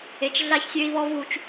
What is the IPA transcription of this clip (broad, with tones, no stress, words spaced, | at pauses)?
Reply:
e˨t͡ʃ ɮa˦çsʲø˦i̯βɔ˦v u˦t͡ʃ